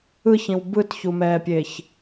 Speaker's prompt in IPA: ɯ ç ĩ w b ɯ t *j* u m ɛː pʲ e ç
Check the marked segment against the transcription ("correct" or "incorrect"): incorrect